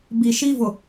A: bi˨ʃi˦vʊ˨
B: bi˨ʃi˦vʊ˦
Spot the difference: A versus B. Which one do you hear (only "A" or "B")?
A